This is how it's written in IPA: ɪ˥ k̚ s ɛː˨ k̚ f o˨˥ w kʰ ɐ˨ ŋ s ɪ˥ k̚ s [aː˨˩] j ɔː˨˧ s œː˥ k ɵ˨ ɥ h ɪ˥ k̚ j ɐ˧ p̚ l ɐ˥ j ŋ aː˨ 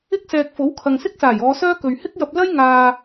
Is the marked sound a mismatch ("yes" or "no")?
no